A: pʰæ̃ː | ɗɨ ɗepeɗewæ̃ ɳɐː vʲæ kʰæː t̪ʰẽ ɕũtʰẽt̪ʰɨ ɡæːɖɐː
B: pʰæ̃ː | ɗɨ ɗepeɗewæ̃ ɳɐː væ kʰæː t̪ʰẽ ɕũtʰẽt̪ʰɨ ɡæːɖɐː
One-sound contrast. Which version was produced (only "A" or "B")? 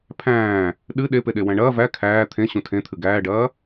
B